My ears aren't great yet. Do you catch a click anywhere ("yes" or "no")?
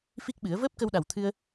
no